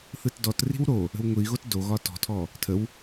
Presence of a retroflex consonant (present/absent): absent